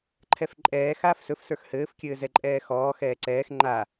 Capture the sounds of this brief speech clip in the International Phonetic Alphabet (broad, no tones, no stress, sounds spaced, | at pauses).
ǃʰ ɛ f ǃʼ ɛː x aː f s ɵ f s ə˞ x h ɘː f kʲ ɘː z ɛ ǃʼ ɛː x ɔː x ɛː ǀ ɛː x ŋ͡ǃ a